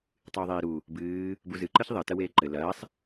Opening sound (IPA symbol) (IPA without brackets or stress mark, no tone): tˤ